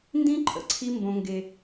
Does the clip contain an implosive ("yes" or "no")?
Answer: no